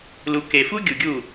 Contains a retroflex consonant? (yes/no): no